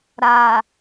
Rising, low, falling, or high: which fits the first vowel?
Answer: low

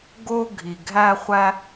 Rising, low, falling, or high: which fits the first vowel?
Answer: high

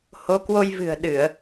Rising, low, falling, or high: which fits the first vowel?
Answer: rising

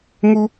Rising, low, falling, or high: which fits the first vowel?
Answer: high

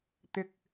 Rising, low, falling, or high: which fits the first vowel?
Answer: high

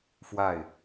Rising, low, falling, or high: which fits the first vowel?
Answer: falling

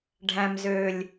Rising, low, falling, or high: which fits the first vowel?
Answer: low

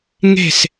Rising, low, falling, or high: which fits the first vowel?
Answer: falling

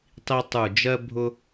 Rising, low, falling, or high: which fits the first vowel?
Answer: high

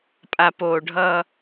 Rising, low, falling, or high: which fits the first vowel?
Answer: low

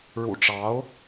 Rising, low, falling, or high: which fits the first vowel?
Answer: low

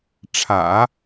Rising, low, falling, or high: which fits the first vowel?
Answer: low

